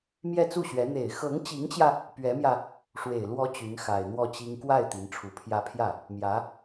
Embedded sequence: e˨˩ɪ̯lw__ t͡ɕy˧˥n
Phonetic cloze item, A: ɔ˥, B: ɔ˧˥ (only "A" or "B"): B